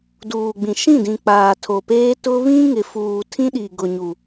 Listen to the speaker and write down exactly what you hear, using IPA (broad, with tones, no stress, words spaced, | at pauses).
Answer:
duː˨ɡ͡bĩ˨ ʃĩ˦˨dĩ˨ k͡paː˨tʰo˨peː˦ tʊ˦ βĩ˦ŋɪ˨ fuː˨ tʰĩ˦ɗi˨ ɡʊ˨ɲu˨